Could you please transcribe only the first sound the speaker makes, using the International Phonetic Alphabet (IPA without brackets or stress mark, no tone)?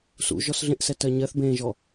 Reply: s